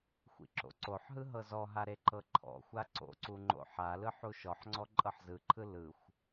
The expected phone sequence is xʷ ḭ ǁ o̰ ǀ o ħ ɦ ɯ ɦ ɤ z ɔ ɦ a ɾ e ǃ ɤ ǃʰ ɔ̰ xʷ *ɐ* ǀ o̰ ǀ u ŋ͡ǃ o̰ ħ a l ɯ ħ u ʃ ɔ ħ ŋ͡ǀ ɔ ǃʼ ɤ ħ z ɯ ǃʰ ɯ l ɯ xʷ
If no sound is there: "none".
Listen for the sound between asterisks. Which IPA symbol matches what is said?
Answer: a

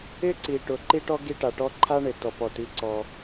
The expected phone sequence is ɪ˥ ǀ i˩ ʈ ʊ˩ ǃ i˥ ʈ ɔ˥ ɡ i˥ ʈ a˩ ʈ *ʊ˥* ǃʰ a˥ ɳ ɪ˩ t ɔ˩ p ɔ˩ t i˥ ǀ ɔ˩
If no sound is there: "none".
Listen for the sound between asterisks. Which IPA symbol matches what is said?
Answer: ɔ˥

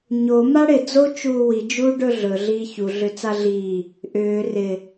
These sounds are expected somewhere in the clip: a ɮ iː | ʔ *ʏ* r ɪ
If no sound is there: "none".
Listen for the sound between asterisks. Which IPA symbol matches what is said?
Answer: ʏː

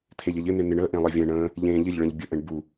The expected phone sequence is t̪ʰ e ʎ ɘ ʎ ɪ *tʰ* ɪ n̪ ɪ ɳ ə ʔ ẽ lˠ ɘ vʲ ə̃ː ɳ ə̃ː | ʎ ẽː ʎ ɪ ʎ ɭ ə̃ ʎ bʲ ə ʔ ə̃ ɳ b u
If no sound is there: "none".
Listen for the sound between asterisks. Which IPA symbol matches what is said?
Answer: n̪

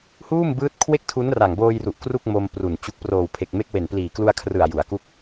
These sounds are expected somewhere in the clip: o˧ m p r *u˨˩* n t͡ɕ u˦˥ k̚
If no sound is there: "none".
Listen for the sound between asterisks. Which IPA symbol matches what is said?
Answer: u˨˩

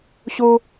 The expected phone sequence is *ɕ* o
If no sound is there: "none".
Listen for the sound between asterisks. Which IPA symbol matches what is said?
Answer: ɕ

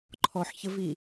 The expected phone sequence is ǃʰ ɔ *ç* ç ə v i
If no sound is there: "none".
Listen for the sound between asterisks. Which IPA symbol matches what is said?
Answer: ħ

